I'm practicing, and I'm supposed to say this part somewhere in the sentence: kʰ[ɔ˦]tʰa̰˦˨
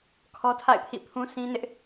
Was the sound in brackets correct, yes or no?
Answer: yes